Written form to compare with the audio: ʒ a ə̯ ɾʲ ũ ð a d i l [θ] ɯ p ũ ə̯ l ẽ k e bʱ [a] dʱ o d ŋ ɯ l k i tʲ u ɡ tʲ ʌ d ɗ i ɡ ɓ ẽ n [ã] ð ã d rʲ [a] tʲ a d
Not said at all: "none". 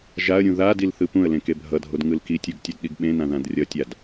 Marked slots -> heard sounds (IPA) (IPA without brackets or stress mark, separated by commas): θ, ʌ, ã, ʌ